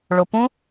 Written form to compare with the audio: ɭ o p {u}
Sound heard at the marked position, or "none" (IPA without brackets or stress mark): ũ